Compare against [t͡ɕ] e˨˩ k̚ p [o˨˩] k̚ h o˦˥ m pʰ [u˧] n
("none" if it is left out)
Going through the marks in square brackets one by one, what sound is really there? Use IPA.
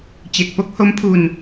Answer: t͡ɕ, o˦˥, u˧

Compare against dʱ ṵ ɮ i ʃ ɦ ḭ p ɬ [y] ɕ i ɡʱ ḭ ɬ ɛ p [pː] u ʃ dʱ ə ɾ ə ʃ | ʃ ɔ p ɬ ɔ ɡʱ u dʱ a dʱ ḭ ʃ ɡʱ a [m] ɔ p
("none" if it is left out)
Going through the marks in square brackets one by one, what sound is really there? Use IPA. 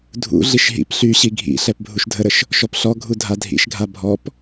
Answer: y, bʱ, bʱ

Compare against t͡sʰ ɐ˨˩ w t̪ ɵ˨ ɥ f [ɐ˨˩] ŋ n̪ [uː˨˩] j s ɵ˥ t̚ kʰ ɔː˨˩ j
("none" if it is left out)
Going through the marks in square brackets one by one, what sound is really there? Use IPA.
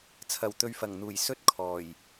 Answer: ɐ˨˩, uː˨˩

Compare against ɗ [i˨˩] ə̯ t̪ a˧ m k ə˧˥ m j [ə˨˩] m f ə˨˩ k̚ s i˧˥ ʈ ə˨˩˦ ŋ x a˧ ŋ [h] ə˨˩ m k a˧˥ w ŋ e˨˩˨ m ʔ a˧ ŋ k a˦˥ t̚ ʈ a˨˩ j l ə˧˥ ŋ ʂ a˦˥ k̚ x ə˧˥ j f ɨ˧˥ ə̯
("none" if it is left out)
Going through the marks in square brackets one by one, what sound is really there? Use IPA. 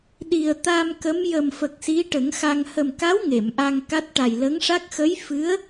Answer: i˨˩, ə˨˩, h

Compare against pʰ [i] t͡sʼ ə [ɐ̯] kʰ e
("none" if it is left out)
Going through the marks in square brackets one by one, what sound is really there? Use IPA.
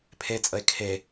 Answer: e, e̯

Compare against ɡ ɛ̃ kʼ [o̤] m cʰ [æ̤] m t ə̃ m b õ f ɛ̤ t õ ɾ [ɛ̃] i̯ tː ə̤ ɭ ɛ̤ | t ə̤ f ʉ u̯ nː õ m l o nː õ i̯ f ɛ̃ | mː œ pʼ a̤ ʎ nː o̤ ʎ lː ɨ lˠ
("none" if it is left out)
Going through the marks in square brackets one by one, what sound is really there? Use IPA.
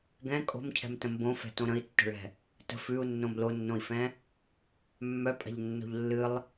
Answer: o̤, ɛ̤, ə̃

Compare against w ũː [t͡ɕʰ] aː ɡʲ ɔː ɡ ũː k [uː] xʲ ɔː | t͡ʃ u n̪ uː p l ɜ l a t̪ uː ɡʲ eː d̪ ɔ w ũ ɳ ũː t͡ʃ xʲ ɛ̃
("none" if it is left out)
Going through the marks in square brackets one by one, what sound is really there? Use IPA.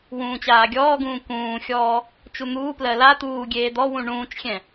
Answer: t͡ɕ, ũː

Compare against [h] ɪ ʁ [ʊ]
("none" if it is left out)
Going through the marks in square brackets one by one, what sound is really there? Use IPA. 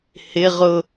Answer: h, ʊ

